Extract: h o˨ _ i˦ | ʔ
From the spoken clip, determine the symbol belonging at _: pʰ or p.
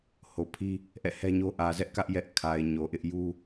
pʰ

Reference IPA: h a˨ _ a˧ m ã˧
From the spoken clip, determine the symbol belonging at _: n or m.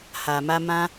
m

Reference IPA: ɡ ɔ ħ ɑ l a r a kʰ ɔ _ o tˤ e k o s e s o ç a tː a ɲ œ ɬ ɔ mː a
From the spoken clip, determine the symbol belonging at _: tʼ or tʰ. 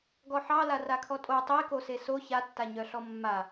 tʼ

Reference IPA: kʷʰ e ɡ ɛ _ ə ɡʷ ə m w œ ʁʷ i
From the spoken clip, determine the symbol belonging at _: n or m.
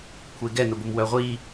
n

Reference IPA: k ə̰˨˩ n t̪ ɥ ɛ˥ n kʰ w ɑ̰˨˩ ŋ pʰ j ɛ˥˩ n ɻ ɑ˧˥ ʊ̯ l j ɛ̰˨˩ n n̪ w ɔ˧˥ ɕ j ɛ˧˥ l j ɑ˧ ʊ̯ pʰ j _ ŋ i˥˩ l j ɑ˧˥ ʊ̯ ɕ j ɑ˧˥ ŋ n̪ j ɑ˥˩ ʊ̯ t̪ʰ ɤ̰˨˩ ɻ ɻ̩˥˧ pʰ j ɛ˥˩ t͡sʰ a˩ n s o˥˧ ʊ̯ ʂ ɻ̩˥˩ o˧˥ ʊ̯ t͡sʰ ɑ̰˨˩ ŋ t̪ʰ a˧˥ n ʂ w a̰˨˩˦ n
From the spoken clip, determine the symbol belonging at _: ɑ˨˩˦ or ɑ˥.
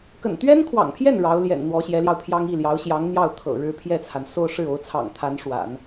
ɑ˥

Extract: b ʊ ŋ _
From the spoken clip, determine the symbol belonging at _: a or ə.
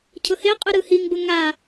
a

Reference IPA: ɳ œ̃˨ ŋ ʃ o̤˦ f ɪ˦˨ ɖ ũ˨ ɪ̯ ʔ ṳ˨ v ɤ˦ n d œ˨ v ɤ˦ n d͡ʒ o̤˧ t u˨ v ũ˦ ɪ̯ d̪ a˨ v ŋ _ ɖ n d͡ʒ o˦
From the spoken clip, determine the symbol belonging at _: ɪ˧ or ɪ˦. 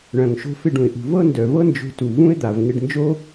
ɪ˧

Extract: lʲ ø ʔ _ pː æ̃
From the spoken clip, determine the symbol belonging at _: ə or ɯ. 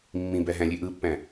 ɯ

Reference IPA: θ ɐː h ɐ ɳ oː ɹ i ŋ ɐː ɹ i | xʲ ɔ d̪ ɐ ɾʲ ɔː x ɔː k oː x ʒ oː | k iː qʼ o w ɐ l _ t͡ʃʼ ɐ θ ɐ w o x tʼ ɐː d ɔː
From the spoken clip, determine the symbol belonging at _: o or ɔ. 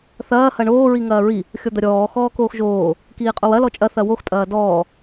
ɔ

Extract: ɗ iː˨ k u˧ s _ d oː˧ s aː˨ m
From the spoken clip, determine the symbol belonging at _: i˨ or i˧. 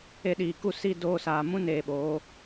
i˧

